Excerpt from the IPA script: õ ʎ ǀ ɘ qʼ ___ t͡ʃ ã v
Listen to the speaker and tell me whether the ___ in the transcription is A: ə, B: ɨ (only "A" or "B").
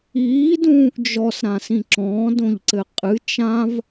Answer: B